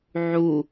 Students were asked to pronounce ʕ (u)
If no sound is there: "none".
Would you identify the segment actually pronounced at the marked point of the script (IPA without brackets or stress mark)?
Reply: u